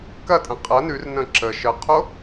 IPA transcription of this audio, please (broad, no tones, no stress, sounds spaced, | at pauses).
k ɐ tʼ ə̃ qʼ ɐ n ʉ r n ə̃ ǁ ə ʃ ə qʰ o